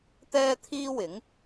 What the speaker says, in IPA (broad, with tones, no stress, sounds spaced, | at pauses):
t̪ ɛː˥ t̪ʰ iː˥ w ɪ˨˥ ŋ